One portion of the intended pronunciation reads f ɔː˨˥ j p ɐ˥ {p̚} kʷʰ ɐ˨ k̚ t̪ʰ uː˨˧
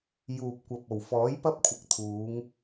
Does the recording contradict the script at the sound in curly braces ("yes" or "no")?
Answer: no